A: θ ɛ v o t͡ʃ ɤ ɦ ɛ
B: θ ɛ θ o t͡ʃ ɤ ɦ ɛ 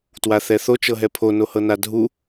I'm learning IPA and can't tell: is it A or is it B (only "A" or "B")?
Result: B